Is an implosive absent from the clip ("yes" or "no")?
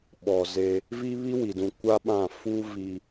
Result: no